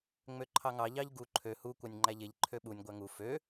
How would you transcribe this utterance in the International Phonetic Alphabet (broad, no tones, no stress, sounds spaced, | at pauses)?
ŋ͡m ø ǃʰ ɑ ŋ ɑ ʎ ɑ ʎ ɡ u ǃʰ ø h u kʷ ɑ nʲ ŋ͡ǃ æ ʎ e ʎ ǃʰ ø ɓ u nʲ ɡʷ æ ŋ u f ø